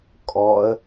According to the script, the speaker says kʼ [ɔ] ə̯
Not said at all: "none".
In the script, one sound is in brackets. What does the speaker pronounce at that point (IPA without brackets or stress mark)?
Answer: ɔ